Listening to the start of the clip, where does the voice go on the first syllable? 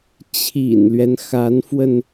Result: low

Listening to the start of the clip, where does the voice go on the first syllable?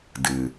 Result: low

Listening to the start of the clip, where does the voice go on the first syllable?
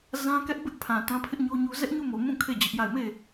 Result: high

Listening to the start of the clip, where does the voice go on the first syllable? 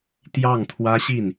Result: falling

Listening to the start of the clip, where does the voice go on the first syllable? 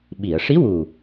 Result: low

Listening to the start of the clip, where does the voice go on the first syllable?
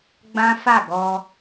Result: high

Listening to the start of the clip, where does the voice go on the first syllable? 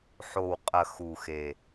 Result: low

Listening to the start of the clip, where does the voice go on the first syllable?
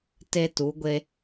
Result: high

